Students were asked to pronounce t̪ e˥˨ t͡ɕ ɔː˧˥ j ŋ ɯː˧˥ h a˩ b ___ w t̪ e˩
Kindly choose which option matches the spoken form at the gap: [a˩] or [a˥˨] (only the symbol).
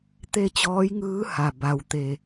a˩